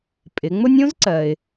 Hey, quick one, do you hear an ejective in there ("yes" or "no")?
yes